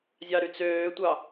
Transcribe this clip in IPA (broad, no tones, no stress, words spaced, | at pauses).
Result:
zʲɑɾyt͡søːtʷɑ